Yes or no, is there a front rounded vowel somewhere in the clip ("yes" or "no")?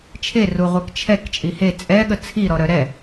yes